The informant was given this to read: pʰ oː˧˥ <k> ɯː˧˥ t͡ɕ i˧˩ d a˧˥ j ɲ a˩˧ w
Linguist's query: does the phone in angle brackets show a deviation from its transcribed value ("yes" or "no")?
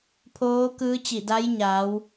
no